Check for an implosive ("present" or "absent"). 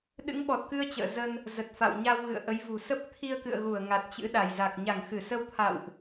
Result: present